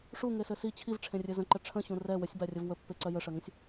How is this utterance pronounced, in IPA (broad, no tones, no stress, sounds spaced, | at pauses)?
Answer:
ʂ u ŋ e s ɘ s i t͡ɕʰ i v ʈ͡ʂʰ ẽ rʲ ɘ z ə̃ ǃ ə ʈ͡ʂʰ ə̃ ɕ ũ r ɛ w ə sʲ b a rʲ ə v w ə pː e ǀ ɜ j ə ʂ ɜ ŋ ə̃ sʲ